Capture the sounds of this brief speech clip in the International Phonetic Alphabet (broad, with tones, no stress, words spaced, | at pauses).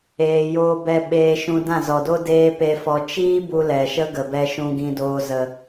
eː˧joː˦ bɛ˧ ɓeː˧ʃũ˧ dã˦˨zɔ˨do˦ deː˦pe˧fɔ˧ t͡ʃiː˦ bu˧ lɛ˨ʃə˦ɡə˨bɛ˧ ʃũ˨ɡĩ˨doː˨ zə˨